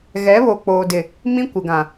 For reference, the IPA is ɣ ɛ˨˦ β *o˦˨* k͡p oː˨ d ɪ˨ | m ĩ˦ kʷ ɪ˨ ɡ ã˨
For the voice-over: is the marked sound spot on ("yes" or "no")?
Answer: no